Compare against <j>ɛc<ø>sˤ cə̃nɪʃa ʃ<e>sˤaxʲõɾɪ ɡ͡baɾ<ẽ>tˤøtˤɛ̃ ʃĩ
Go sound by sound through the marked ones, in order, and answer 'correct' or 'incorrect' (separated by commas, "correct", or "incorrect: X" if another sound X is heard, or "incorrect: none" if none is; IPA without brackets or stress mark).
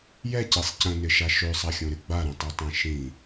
correct, incorrect: e, incorrect: ø, incorrect: ĩ